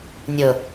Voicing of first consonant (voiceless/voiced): voiced